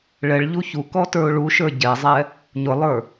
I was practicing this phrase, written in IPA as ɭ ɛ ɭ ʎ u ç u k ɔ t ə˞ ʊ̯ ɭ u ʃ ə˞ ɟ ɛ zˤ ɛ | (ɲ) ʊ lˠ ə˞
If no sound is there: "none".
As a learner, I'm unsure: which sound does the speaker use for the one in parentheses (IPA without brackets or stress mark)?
ɲ